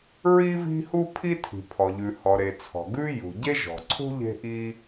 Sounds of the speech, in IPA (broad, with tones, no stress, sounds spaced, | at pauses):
ɹ i˥ v i̤˥ h u˥ pʰ i˥ tʰ i̤˩ pʰ ɔ˩ ʎ ʉ˩ h ɔ˩ ɾ e˩ t͡sʰ ɔ̤˩ ɡ ʉ˥ j ṳ˩ ɟ e˥ ʒ ɔ̤˩ ǀʰ ṳ˥ ʎ e̤˥ ʔ i˥